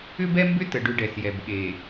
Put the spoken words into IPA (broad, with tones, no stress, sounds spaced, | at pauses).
ʏ˦ b ɛ˦ m b ʏ˦ t ə˨ ɖ ʏ˦ ɖ ɛ˨ s j ɛ˨ b ɠ e˨